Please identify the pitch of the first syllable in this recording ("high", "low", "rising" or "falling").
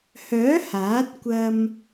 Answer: rising